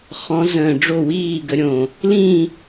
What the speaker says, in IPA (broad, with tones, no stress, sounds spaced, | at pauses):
χ ɔ̃˨˥ z ə̃ː˧˩ ɖ͡ʐ o˥˨ w iː˥˨ ɡ ə˨˥ ɾʲ õ˧˩ | l ĩ˥˨